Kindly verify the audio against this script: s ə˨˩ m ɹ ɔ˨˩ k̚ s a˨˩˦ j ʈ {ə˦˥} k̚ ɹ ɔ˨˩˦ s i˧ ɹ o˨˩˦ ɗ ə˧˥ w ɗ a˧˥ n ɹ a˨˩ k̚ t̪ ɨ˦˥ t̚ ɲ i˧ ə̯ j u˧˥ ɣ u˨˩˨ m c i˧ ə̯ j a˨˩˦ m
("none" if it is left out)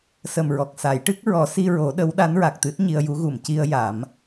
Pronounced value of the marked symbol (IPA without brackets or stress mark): ɨ˦˥